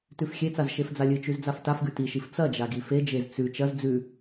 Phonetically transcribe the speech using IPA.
tʉfxʲet͡saz ʃefd͡zalʲɨt͡ʃʉz d͡zaftafɡʉ tiʃif t͡sɐd͡ʒa ɡifed͡ʒez t͡sʉ t͡ʃɐz d͡zʉ

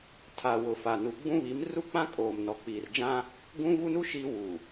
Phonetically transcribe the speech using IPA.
tʰa˨ wʊ˨ fa˨nu˨ɡ͡bũ˦ βi˨˦mru˦k͡pã˦ kʼoː˨mnɔ˨k͡piː˨rd͡ʒã˦ | ɡũ˦vu˦nu˦ ʃi˦ wu˨

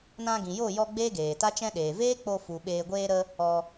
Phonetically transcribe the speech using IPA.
nã˧ɡĩ˨jo˦˨jɔ˧ ɡ͡beː˦ɡeː˨ta˦t͡ʃɛ̃˦ ɗeː˨veː˦k͡po˧fu˨ ɓeː˧ɡʷeː˦ɾə˦ | ɔ˧

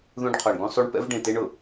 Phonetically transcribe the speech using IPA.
ðũ˦ɖ qʰɔ˨ɳɡũ˦sˤu˦ɳ pɛ̰˦vɖẽ˨te˦ɳ ʊ˨

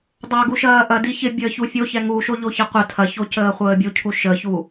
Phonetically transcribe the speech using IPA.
dˤaɡu ʃɐːʔɐdi çɪbʲəː çufʲo çɛŋuʃo ʎoçɐqʷɐ tʰɐço cəːχʷəːbʲucʰu ʃəçu

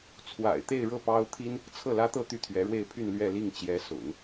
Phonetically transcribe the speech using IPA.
t͡sʰwa̰˨˩ɪ̯t̪e˥˧ɪ̯ɻɤ˥˩ pɑ˥ʊ̯ t̪ʰi˥n | t͡sʰɤ˥˩lä˥t̪ɤ˥˧ t̪y˥˩t̪ʰɥɛ˧˥ɻwe˥˧ɪ̯pʰy˥˧n lɥɛ˥˧li˥˩ŋ t͡ɕjɛ˧˥sʊ̰˨˩˦ŋ

